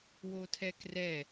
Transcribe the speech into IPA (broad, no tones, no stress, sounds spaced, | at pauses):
w o tʰ ɛ k r ɛ